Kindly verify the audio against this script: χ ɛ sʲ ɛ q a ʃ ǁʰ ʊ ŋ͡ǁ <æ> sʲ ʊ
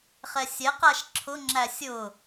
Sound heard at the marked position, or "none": æ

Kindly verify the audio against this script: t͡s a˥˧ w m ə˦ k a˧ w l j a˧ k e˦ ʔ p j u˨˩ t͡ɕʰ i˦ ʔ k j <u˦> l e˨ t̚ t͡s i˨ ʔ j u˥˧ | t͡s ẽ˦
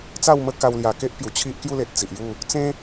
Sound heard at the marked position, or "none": u˥˧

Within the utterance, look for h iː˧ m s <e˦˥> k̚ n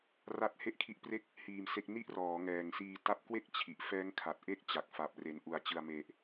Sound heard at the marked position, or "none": e˦˥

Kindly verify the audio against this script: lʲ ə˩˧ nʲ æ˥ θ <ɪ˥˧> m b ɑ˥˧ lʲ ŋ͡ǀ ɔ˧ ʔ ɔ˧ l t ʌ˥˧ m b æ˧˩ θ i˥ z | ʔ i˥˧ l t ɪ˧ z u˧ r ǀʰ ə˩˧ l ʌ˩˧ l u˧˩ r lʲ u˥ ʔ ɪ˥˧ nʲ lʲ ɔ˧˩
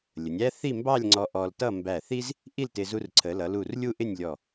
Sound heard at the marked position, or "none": i˥˧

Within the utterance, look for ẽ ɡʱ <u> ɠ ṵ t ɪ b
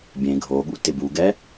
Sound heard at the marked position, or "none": o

